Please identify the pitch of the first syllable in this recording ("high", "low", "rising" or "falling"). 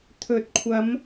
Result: rising